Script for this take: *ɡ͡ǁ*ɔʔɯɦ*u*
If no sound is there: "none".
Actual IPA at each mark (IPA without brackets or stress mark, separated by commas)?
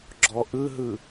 ɡ͡ǁ, ɯ